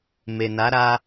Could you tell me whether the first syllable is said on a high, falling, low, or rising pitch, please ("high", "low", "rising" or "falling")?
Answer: low